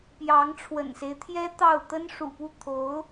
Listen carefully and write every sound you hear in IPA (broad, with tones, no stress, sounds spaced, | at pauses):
p j ɑ˧˥ ŋ ʈ͡ʂʰ w ə̰˨˩ n s e˦ ɪ̯ t̪ʰ j ɛ˥ t̪ ɑ˥˩ ʊ̯ t̪ ə˥ n ʂ ṵ˨˩ p u˥˩ t̪ʰ o˧˥ ʊ̯